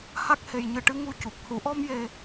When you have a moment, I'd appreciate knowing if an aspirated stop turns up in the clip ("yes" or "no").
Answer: no